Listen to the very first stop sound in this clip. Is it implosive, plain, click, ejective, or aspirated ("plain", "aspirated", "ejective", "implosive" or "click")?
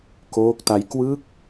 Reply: plain